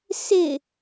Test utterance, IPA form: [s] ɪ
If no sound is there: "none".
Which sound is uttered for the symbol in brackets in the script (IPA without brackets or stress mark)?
s